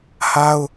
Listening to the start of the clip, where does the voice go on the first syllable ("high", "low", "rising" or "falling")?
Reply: high